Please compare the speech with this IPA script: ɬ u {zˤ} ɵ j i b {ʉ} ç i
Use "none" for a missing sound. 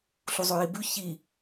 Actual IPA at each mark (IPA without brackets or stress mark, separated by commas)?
zˤ, ʉ